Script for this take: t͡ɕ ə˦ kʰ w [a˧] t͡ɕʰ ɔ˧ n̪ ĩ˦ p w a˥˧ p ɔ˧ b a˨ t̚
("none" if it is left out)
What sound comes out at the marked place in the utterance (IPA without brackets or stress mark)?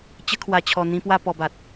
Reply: a˧